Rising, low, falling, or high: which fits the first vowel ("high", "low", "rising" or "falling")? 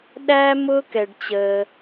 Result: high